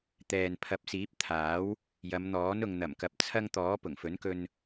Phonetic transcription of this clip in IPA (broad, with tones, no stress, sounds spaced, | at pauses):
t̪ ɛː˨ n pʰ ɐ˨˥ p̚ s iː˨˥ p̚ t̪ʰ aː˨˥ w | j ɐ˨˧ m n̪ ɔː˨˥ n ʊ˨ ŋ n̪ ɐ˨˩ m k ɐ˨ p̚ t͡sʰ ɐ˧ ŋ t̪ ɔː˨˥ p ʊ˨˩ ŋ f ɵ˨˥ n k ɵ˧ n